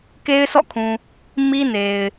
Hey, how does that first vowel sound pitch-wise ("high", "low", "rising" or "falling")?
high